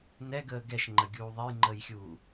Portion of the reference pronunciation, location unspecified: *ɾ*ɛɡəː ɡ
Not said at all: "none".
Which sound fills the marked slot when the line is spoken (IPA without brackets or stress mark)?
n